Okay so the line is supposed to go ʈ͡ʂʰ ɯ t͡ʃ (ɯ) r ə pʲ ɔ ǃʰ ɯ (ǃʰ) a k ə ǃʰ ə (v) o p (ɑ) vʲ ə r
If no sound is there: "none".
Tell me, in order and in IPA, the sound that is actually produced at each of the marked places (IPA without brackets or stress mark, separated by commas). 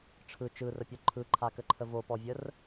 ɯ, ǃʰ, v, ɔ